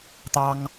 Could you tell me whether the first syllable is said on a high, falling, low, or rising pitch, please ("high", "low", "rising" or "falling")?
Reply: high